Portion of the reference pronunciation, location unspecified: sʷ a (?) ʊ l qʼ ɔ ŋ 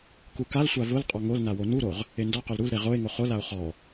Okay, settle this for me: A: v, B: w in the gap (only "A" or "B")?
A